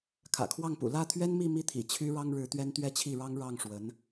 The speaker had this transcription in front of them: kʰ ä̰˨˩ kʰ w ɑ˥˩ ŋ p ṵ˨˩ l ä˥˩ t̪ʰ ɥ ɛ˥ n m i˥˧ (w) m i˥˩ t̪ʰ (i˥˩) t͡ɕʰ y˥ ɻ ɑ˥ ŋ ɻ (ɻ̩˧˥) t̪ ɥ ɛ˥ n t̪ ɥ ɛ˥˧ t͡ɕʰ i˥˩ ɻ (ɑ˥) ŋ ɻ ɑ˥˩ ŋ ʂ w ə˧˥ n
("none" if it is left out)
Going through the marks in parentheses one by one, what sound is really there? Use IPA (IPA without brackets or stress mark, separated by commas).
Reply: none, ḭ˨˩, ɻ̩˧˥, ɑ˥